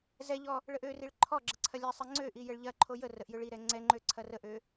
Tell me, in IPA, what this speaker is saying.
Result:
z ɛ ʎ ɔ | ɭ ə ʔ ø r i ɭ ǃʰ ɔ ɡ͡ǁ ə ǀʰ ɐ lʲ ɛ sˤ ɛ ŋ͡ǀ ø ʔ i j ə ɭ ʎ ɐ ǃʰ o j ə r ə ʔ j ø ɭ i ɾ ɛ ŋ͡ǀ ɛ ŋ͡ǃ ø ǀʰ ɐ r ə ʔ ø

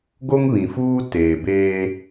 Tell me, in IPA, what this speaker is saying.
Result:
ɡ o˦ ŋ β ĩ˨ f uː˦ t eː˨ b eː˦

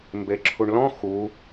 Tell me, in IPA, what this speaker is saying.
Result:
m b e ǁʰ u ɳ l ɔ̃ x u

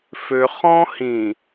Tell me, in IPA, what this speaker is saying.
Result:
f ø χ ɔ̃ h ĩ

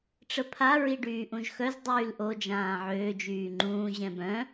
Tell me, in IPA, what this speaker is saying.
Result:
ʈ͡ʂ ə pʰ a ɹ i ɖ yː ʔ ũ ʒ x œ z dˤ yː l ʔ o d͡ʒ ãː ʕ øː d͡ʒ yː ŋ͡ǃ ũː ʑ ɛ̃ b œ̃

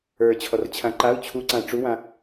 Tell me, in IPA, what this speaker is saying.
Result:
ə˞ t͡ɕʰ ɔ r t͡ɕʰ ã ǃ a u̯ t͡ɕʰ u ǀ ãː ʈ͡ʂ u w ã

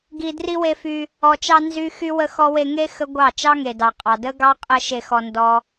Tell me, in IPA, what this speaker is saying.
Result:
ɡ i˧ d r i˦ w e˧ f y˧ | ɔ˨ t͡ʃ ɑ˧ n z y˦ x y˦ w ə˦ x ɔ˦ w e˧ ŋ e˦ x ə˦ ɡʷ ɑ˦˨ t͡ʃ ɑ˦ ŋ e˨ d ɑ˨ qʼ ɑ˨ d ə˦ ɡ ɑ˦ qʼ ə˦ ʃ e˧ x ɔ˧ n d ɔ˦

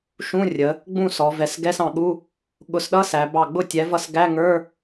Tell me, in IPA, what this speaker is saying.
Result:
ʃ ũ˧˥˧ rʲ ə˩˧ | ɡ͡b ũ˥˩ s ɔ˩˧ v ɛ˩˧ s ɡ ɛ˧˥˧ s ɑ̃˩˧ ɠ u˧˥˧ | ɠ ʊ˨˥ s ɗ ʌ˧˥˧ s æ˩˧ b ɑ˧˩ ɡ͡b ʊ˥˩ tʲ ɛ˨˥ v ʌ˥˩ s ɡ æ˧˥˧ ŋ ə˞˧˥˧

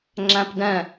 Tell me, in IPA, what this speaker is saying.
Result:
ŋ͡ǁ æ̃ p d ɛ̃

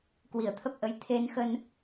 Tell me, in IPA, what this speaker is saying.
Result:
k w i˧˩ ə̯ t̪ʰ ə˦˥ p̚ ʔ ə˨˦ j t̪ʰ e˧ n x ə˧ n

